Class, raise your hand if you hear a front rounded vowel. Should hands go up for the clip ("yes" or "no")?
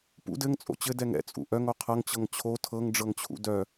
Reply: yes